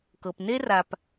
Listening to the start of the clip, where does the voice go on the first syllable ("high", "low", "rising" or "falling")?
low